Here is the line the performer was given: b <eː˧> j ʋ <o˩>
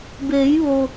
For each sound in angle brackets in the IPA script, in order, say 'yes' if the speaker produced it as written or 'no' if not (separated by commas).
no, yes